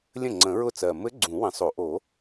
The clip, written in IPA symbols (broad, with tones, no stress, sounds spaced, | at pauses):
lʲ ə̃˥˩ ŋ͡ǀ ə̃˨˩˦ ɹ ʊ˥˩ t͡s ɜ˨˩ m ɘ˧˥ ɡ͡ǀ ũ˨˩˦ w ə̃˨˩˦ sˤ o˨˩˦ ʔ o˨˩˦